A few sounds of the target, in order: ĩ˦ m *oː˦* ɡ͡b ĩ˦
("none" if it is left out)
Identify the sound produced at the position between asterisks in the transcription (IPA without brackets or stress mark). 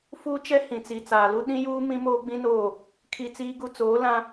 oː˦